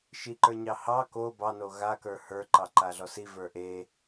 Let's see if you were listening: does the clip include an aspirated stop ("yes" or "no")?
no